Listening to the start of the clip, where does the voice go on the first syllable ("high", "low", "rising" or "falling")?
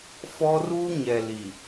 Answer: high